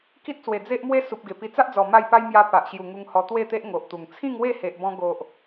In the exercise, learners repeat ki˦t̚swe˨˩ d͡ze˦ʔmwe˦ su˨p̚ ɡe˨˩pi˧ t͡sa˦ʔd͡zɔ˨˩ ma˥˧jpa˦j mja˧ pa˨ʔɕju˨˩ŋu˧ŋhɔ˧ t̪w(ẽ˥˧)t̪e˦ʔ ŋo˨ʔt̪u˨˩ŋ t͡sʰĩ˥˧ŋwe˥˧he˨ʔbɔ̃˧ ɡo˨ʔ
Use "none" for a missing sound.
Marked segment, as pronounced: e˥˧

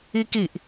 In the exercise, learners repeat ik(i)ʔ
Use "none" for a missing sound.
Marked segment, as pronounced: i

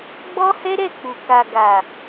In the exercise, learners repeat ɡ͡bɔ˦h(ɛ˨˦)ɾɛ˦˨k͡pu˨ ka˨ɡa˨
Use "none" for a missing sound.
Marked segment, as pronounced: ɛ˦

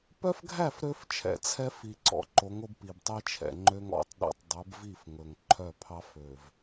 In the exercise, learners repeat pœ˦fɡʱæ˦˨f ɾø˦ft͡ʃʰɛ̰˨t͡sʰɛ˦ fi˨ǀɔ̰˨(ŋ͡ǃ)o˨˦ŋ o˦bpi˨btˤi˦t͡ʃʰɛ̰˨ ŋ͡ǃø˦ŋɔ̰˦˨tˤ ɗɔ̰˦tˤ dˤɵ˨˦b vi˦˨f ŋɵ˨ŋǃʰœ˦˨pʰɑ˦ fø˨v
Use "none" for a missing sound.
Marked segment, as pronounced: ǃ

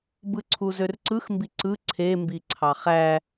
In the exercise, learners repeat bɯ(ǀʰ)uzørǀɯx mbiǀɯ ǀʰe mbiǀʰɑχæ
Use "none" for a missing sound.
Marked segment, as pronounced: ǀʰ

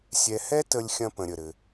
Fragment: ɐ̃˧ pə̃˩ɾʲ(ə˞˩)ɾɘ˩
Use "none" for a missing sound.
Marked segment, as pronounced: ə˩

